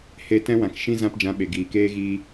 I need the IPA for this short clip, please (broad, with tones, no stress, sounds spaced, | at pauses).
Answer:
h e˧ t ɛ̃˦ w ã˨ k ʃ ĩ˦ z ã˧ p d͡ʒ ã˨˦ ɓ e˨ ɡ iː˨ k eː˦ ɣ iː˦